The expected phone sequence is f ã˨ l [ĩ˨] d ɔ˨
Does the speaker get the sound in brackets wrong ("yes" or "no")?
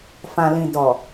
no